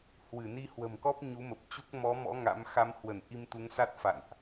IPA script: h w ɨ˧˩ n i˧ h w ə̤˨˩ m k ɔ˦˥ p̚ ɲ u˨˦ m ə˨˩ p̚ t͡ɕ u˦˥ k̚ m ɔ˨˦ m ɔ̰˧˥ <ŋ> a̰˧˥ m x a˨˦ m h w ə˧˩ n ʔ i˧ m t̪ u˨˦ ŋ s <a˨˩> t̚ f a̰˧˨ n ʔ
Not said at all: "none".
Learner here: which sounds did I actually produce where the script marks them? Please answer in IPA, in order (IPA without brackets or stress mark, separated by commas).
ŋ, a˦˥